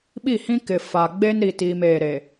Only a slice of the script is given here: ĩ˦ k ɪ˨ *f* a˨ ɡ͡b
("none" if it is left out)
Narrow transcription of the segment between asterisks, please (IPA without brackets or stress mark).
f